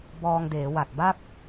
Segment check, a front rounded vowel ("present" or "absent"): absent